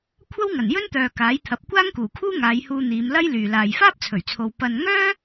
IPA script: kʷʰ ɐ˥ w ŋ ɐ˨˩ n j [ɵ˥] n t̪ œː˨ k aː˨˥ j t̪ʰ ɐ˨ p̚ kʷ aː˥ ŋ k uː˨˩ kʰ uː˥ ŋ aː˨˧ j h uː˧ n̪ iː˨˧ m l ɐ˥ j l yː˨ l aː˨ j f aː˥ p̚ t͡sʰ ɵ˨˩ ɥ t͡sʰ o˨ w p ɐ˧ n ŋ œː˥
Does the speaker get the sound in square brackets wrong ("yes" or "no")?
no